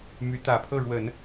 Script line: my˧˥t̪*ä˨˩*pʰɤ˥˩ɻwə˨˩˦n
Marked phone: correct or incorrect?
correct